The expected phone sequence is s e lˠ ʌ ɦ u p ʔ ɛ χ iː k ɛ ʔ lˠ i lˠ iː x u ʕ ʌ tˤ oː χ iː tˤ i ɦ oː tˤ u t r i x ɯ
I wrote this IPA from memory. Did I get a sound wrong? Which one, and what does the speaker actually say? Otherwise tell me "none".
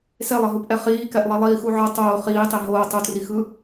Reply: none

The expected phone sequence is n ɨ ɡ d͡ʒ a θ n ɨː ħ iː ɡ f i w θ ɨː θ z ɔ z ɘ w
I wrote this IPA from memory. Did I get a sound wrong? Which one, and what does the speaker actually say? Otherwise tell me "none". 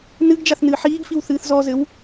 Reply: none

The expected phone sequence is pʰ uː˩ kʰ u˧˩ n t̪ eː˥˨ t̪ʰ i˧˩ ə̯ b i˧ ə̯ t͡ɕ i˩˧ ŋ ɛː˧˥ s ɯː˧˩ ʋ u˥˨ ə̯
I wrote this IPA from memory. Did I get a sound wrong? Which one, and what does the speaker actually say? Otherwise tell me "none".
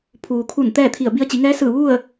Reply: eː˥˨ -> ɛː˥˨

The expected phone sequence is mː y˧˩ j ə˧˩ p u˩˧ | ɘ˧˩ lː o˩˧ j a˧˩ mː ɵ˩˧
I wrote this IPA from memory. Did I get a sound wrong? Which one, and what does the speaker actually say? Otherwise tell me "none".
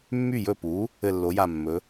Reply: ə˧˩ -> ɵ˧˩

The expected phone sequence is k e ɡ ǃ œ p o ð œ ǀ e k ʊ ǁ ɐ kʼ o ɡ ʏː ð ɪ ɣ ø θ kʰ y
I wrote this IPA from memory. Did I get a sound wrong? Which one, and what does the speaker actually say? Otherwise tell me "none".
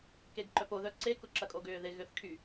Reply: none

